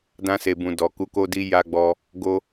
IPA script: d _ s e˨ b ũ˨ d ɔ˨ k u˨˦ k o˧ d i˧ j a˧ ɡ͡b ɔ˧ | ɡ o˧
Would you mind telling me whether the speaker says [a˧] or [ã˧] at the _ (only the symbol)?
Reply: ã˧